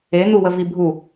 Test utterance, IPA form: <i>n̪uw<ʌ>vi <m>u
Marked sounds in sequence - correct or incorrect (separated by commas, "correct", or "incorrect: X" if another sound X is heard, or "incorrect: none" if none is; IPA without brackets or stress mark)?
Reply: incorrect: e, incorrect: ə, incorrect: bʱ